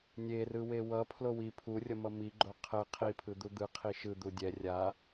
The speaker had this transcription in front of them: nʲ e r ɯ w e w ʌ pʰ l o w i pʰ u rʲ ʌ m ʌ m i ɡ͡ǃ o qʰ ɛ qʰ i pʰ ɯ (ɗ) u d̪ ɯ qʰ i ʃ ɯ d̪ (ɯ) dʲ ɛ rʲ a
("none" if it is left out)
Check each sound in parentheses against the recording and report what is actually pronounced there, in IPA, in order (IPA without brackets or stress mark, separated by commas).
d̪, u